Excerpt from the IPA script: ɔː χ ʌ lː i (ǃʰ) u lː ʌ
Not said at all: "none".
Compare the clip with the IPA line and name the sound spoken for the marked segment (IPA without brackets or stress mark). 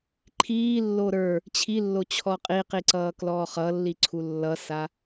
ǀʰ